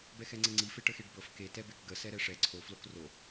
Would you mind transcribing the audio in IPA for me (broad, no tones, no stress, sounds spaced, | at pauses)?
b ɛ x ɛ ŋ͡ǀ ə ŋ͡ǀ i f e ʈ ə x e ɖ b ɤ f k e t ɛ b e k ɡ ə s ɛ ɾ ɛ ʂ ɛ ǀʰ o f l o k r o